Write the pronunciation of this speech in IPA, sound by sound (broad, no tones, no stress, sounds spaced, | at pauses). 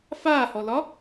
f aː h ɔ l ɒ